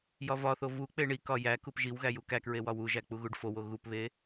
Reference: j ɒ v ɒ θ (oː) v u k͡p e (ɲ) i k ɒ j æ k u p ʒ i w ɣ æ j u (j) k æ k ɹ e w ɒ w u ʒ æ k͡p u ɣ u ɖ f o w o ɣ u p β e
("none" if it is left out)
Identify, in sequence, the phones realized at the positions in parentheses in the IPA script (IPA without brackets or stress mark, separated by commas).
o, ɳ, none